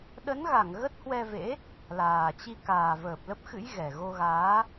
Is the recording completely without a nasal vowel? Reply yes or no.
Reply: yes